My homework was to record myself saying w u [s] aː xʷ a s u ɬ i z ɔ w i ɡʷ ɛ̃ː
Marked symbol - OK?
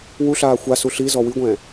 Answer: no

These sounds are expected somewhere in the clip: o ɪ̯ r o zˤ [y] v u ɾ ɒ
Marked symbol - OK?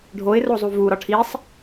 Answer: no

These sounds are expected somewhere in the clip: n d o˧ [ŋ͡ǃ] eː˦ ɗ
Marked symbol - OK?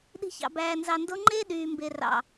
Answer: yes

